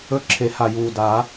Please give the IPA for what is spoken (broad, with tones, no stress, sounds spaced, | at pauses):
ɵ˥˨ ǁʰ e˨˩˦ h a˨˩ j uː˨˩ d a˨˩˦